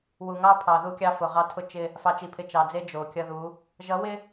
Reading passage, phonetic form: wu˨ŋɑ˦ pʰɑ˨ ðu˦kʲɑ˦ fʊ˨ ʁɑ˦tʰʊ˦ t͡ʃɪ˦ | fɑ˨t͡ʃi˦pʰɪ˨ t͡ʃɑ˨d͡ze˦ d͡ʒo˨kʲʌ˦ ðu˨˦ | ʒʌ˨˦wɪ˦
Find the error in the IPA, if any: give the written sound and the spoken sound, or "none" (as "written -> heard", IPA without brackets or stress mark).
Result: i˦ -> i˨